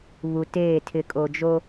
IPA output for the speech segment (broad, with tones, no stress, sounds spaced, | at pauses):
β u˨ t eː˦˨ tʰ ɪ˨ kʼ o˨ d͡ʒ o˦